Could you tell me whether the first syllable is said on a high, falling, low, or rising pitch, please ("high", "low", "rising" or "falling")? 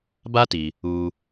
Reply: high